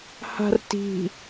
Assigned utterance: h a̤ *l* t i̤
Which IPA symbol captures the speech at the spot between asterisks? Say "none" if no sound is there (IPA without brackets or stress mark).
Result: r